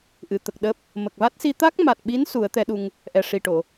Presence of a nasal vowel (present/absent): absent